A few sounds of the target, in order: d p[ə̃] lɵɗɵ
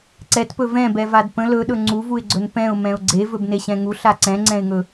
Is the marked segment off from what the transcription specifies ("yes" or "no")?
no